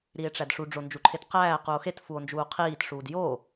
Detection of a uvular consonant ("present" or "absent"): present